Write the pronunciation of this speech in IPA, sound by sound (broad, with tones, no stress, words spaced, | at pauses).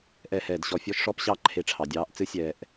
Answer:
ʔɛ˧hɛː˨d ɕɔ˧fʲɔ˦ʃ ʂɔ˦pɕɑ˦ǃʰe˧ ʈ͡ʂʰɑ˨dʲɑː˧ʔt͡sɨ˦ sʲɛː˧ʔ